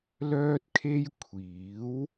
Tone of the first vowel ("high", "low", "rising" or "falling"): high